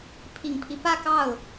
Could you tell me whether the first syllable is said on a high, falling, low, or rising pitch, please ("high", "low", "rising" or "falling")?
low